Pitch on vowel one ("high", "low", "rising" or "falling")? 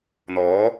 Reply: rising